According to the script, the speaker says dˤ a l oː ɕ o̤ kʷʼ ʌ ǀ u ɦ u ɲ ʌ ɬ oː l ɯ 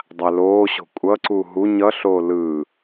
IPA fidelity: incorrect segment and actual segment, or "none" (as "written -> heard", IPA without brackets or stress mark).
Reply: none